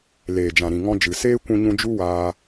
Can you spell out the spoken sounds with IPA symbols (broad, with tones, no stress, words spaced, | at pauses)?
leː˨d͡ʒã˨ɾĩ˨ ŋɔ̃˧d͡ʒɨ˨seː˦ kʷũ˧ɲũ˧ d͡ʒu˦waː˧